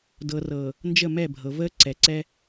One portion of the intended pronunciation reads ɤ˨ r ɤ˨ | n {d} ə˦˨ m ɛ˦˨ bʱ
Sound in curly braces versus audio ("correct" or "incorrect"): incorrect